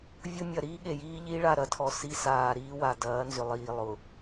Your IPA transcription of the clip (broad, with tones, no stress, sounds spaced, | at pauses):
vʲ ʊ˦ mʲ ɐ˨ ɾ iː˦ ɠ e˨ j iː˦ ʎ iː˦ ɭ a˦˨ ɾ ɐ˦ tʰ ɔ˨ s i˦ s aː˨ ɾ iː˦ w a˨ d ɐː˨˦ n z ʏ˨ lˠ iː˨ lˠ ʊ˨